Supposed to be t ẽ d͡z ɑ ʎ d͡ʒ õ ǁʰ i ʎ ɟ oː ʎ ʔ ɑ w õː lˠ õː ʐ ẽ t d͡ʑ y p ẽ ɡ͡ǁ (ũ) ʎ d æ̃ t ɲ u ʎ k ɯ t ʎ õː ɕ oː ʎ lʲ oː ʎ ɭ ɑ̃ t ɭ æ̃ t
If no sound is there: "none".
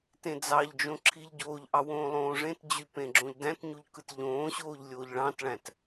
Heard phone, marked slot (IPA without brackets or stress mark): õ